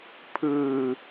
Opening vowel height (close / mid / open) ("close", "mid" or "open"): close